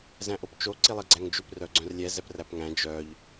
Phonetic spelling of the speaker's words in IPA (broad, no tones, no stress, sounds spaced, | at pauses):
z æ̃ ʔ o p t͡ʃ o ǀ i lˠ i ɡ͡ǀ æ ŋ d͡ʒ ʉ p r œ ɡ͡ǀ œ̃ r lʲ ɛ z ɛ p r æ p ŋ æ̃ d͡ʒ œ ʎ